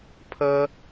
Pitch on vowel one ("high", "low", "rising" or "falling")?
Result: high